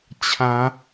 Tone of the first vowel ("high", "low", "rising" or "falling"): rising